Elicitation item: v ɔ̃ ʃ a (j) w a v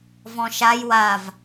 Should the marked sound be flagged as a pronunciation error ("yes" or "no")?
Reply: no